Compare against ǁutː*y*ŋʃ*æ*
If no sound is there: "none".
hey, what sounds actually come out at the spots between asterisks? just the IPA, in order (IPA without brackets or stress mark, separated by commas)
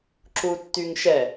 y, ɛ